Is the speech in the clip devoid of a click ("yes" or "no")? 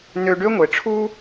yes